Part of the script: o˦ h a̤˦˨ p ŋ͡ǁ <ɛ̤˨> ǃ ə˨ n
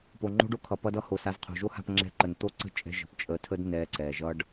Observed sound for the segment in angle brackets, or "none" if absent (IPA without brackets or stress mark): ɛ̤˧